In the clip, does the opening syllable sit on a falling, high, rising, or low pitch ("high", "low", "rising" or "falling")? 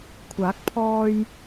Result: rising